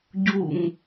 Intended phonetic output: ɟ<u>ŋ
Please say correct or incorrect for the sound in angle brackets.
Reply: correct